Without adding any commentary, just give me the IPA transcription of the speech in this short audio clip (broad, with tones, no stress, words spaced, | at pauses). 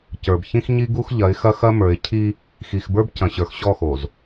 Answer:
cə˞˨bçĩ˦xɲi˦ɡu˦x ʎɐ˨˦ɪ̯xɐ˦xɐ˦ mə˞˨ɪ̯cʰi˦ | xi˨xbə˞˦b cɐ̃˨ɕə˞˨x ɕɔ˦˨xo˨z